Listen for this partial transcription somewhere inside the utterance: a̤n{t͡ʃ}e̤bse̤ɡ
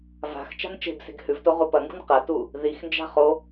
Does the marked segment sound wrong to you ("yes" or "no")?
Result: no